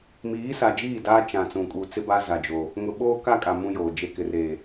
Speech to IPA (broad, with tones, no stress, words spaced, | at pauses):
miː˨˦sa˨d͡ʒiː˦˨ daː˦ t͡ʃã˨ t͡sũ˨kʼu˨t͡sɪ˦ba˦ za˨d͡ʒoː˨ | ŋʊ˨ɓoː˦ka˦kʼa˨ mũ˦joː˨d͡ʒe˦ kɪ˨reː˨